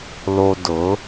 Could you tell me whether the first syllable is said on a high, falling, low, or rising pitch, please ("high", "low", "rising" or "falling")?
low